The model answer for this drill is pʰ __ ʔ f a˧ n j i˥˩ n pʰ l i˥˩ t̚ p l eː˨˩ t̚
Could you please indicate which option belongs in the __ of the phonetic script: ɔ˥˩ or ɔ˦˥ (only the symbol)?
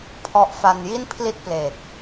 ɔ˦˥